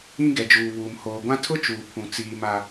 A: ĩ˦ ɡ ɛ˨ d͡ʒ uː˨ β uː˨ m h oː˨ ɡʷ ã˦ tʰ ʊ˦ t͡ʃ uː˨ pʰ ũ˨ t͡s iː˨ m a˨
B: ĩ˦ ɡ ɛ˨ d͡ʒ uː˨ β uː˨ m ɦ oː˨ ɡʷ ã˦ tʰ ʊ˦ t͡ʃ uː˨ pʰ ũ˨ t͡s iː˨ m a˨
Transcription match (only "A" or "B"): A